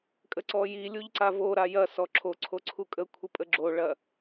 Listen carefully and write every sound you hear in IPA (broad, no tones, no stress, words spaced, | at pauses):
kʼəǀɔji lʲuʎǀavo ɾajɐsɔ ǁʰoǀʰoǀʰu kʼə kʷʰəpʼəɡ͡ǁo ɭɐ